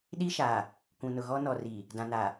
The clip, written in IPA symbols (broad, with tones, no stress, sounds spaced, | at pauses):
ɗ i˦ ʃ a˨ | kʷ ũ˨ n ʊ˨ ɣ ɔ˦ n ɔ˨ r i˨ | d ã˨ n a˨